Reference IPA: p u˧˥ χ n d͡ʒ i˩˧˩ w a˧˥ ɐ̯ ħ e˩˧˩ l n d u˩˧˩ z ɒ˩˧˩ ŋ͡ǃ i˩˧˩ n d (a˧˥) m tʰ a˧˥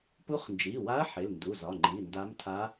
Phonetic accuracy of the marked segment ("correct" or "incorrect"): correct